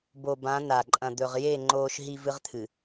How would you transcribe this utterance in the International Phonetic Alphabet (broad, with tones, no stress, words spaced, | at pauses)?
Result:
bo˨bã˨˦ na˨ ǃʼɐ̃˨d̪ɵ˨ʁ je˦˨ ŋ͡ǃoː˦ʃɦi˦ vɨ˦ʁt̪ʰɨ˨